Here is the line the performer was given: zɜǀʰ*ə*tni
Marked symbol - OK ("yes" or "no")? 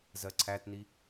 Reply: no